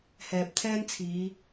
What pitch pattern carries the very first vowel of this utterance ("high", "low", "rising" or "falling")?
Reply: low